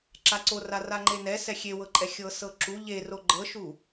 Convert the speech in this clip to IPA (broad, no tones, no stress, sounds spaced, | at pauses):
ǁ a ǀ o r a r a ŋ͡ǃ e n ɛ s ɛ xʲ e w ɤ ǃʼ ɛ xʲ ɤ s ɤ ǁ u ʎ e r o ɡ͡ǃ ɤ ʃ u